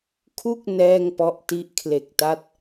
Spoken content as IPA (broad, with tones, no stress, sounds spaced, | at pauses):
kʰ u˥˩ k̚ n ɛː˥˩ ŋ p ɔ˦˥ ʔ t i˦˥ ʔ kʰ l e˨˩ k̚ t a˦˥ t̚